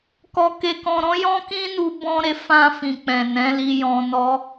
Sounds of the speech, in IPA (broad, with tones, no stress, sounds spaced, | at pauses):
k ɔ˧ k e˧ k ɔ̃˧ ɾ ɔ̃˦ j ɔ̃˦ k ĩ˦ n u˧ b ɔ̃˧ ɾ e˧ f ã˧ f ĩ˨ k͡p ɛ̃˨ n ɛ̃˨˦ l i˧ j ɔ̃˧ n ɔ˦